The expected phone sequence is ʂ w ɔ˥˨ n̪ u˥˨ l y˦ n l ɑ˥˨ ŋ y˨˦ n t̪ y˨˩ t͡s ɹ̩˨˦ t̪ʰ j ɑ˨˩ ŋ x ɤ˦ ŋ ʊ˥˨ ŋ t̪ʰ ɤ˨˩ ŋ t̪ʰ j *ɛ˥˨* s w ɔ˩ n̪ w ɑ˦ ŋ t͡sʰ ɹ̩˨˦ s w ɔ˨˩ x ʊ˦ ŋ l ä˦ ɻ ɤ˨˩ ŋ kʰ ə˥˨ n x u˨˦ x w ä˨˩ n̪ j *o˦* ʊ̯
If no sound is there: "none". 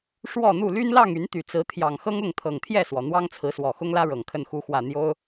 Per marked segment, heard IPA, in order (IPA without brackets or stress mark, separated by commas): ɛ˥˨, o˦